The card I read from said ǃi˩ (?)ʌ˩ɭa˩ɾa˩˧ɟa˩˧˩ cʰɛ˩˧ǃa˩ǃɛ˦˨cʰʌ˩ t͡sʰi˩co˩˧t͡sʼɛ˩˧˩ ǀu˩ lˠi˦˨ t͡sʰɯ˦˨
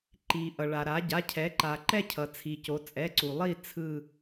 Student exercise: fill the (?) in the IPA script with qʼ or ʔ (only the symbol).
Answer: ʔ